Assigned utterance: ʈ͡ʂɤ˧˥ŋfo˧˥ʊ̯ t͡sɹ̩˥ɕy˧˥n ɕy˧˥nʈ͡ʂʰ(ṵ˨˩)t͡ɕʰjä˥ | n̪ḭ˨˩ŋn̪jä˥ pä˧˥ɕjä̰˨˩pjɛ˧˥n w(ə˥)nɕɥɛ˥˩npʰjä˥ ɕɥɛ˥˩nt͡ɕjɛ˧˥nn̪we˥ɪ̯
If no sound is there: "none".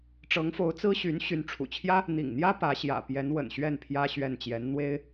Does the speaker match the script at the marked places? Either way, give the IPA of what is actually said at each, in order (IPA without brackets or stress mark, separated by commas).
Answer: ṵ˨˩, ə̰˨˩